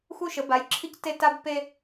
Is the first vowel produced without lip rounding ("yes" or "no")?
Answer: no